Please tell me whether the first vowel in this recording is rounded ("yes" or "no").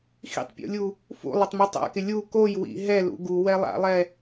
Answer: no